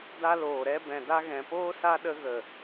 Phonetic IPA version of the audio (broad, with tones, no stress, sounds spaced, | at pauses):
d a˧ l oː˨ ɾ ɛ˧ b ɛ̃˨ d a˧ ɣ ɛ̃˨ p oː˦ s a˦ ɗ ə˧ ɣ ə˨